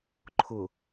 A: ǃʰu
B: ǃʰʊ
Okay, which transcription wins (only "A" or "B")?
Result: B